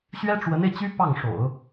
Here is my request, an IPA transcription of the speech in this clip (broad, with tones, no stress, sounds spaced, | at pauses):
ɕ ɥ ɛ˥ ʈ͡ʂ w ə˧˥ n e˧ ɪ̯ t͡ɕ y˥ p ɑ˥˩ ŋ ʂ o̰˨˩˦ ʊ̯